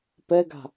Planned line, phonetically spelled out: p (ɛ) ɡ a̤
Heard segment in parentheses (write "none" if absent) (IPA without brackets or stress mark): ɛ